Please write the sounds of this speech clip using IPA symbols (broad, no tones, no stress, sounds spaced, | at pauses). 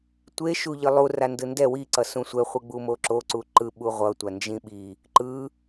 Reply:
tʷ e ʃ u ʎ ɯ lˠ u r a n d ɯ n d ɛ w i ǀ ʌ s ũ sʷ ɛ χʷ ɯ ɡ͡b u m o ǁ o ǀ u ǃ ɯ ɓ u ʁʷ ʌ tʷ a n d͡ʒ ĩ ɓ i | ǃ ɯ